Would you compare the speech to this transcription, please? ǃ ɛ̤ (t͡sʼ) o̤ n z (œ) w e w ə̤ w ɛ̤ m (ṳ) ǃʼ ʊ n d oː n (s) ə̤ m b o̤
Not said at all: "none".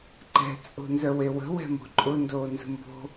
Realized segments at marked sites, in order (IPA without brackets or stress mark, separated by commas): t͡sʼ, œ, o̤, z